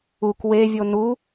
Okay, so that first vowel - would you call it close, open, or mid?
close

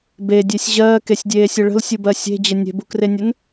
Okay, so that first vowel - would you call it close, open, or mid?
mid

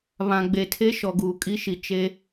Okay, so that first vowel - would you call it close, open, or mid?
open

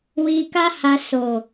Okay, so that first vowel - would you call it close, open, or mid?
close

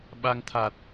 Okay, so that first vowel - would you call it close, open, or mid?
open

